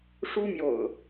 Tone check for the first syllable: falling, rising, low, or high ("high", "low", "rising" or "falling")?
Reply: high